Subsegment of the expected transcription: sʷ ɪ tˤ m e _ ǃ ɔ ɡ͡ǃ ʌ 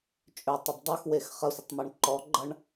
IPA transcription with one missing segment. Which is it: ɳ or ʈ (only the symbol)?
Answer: ɳ